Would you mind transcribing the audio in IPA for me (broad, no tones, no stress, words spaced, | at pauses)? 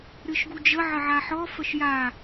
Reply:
ɾɨʃɡud͡ʒə ʕəʕaħɔ fəʃja